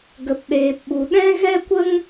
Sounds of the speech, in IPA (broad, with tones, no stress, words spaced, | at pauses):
ɡə˨pɗeː˨pɓu˨ɗɛ̃˦ ɣɛ˦kʷə˦ŋ